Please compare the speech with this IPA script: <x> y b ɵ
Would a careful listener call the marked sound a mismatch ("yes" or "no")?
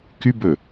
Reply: yes